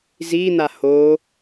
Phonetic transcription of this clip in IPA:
z i n̪ a h o

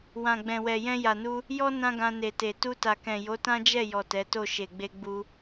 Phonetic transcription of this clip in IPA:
w ã˨ ɡ͡b ɛ̃˨ w ɛ˨ j ɛ̃˧ j a˨ n u˧ | j ɔ˦ n ã˦ ɡ ã˧ n e˨ t e˨ t u˧ t a˨ k ɛ̃˨ j o˨˦ t ã˦ d͡ʒ ɛ˦˨ j ɔ˨ t ɛ˨˦ t o˦˨ ʃ e˨ ɡ͡b e˧ ɡ͡b u˧

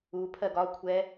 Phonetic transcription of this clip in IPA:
u pʰ ɜ ɡ ɒ kʷʰ ɛ

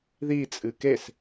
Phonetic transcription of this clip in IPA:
ð i t͡sʼ ɨ k e s

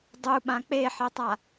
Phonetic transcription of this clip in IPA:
dˤ u ɓ ã k͡p e ħ e tˤ a

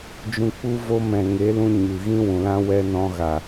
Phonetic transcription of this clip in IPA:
d͡ʒ ũ˧ k͡p u˦ v o˦ m ɛ̃˨ ŋ e˨˦ l ũ˧ ɲ ɨ˨ ɣ ĩ˦ w ũ˨ l ã˦ w ɛ˦ n ɔ̃˦ ɣ a˨

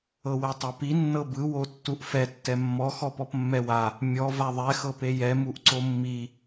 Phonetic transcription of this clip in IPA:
ɤ w ɛ tˤ a p i nː ɤ b ɯ w o tː u ʔ f ɛ tː ɛ mː ɔ x ɔ p ɔ p mː ɛ w a | mʲ ɔ v a ðˤ ɛ x ɤ p e j ɛ m u ʔ ǀ o mː i

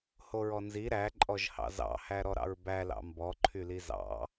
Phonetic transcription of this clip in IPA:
h o ɹ ɔ n z i ɾ æ ǃʼ ɔ ʒ h ɑ̰ z ɑ̰ h æ ɾ ɔ ɾ ɑ̰ ɹ b æ l ɑ̰ m b ɔ ǃʰ y l i z ɑ̰

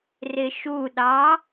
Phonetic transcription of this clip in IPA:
r ɪ ʃ u ɗ ɑ

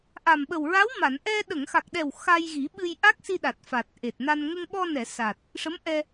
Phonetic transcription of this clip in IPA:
ʔ a˨˩ m ɓ ə˨˩ w ɹ a˧˥ w m a˨˩˨ n ʔ ɛ˧ ɗ ə˨˩˨ ŋ x a˨˩ k̚ ɗ ɛ˨˩ w x a˧ j ɣ i˨˩˦ ɓ ɨ˧ j ʔ a˦˥ k̚ s i˧ ɗ a˨˩ t̚ f a˨˩ t̚ ʔ e˨˩ t̚ n a˧ n ŋ ə˧ ŋ ɓ ɔ˧ n ɛ˨˩˨ s a˨˩ t̚ | ʂ ə˧˥ m ʔ ɛ˧

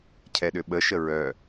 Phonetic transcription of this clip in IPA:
cʰ ɛ ɗ ʏ ɓ ə ʃ ə ɹ œ

